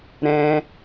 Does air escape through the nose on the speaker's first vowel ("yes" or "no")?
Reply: yes